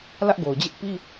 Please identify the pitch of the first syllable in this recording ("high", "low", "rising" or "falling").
high